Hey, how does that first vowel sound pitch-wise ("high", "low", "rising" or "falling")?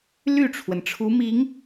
falling